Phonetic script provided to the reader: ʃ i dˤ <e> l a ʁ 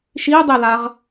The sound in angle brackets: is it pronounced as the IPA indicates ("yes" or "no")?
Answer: yes